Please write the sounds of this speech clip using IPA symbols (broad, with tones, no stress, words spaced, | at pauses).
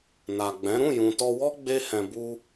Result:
na˨ɡ͡bɛ̃˨˦ ɾũ˦˨jũ˨tɔ˧wɔ˦ ɡ͡be˦hɛ̃˧bu˦